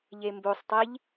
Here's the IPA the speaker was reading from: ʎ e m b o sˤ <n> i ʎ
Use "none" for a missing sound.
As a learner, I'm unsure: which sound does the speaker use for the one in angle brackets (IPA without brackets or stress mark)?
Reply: tˤ